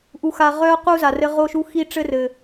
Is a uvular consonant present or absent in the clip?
present